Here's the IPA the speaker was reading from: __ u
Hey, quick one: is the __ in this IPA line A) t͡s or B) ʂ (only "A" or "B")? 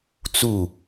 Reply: A